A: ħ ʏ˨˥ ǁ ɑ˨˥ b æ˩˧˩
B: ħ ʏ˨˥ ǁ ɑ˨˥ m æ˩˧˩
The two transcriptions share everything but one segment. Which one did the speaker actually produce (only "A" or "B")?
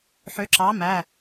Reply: B